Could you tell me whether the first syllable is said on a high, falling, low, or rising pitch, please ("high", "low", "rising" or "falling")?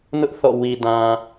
high